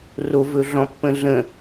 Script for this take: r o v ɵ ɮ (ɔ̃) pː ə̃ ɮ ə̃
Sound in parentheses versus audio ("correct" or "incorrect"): correct